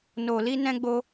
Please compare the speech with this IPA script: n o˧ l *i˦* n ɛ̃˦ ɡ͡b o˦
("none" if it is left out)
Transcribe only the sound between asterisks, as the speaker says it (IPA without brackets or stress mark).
i˦